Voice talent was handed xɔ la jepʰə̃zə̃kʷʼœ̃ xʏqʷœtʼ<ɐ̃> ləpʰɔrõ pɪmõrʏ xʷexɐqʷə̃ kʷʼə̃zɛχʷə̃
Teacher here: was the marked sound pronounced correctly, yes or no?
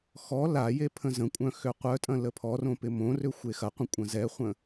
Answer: yes